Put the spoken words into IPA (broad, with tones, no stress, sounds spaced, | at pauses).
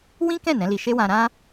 w ĩ˦ k ɛ̃˦˨ n ɛ̃˨˦ l i˧ ʃ e˦ w ã˧ ɾ ã˦